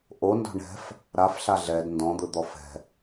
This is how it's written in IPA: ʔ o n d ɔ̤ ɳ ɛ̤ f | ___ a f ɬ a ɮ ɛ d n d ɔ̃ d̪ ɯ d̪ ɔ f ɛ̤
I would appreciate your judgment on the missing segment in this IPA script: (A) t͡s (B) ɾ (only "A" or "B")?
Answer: B